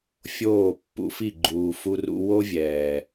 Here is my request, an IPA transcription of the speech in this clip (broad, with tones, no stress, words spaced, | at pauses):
fʲoː˦˨pːṵ˧fi˦˨ ɡ͡ǃuː˨ fu˧rṵ˧ wo˦vʲɛː˨